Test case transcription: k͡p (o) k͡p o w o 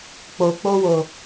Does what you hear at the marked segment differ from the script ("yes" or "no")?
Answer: no